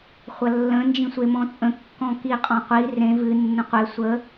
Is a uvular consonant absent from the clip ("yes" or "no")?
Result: no